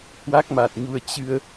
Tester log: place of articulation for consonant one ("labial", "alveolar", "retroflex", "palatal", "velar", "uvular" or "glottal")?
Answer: glottal